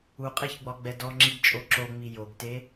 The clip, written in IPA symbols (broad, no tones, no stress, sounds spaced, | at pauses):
u qʼ e ç ɡ͡b ɒ ɡ͡b ɛ d ɔ ŋ͡ǁ i ɡ t͡ʃʼ o ǁ o ŋ͡m i j o ɡ t e